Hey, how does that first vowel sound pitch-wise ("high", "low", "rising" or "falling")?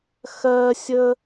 high